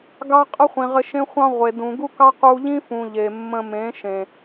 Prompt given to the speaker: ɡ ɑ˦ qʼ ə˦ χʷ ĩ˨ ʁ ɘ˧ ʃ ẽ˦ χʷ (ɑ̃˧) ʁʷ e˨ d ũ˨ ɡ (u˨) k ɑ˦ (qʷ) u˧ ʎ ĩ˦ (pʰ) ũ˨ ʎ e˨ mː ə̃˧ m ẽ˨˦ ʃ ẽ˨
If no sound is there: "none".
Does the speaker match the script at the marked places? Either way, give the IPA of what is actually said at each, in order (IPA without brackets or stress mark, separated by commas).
ɑ̃˦, u˦, q, f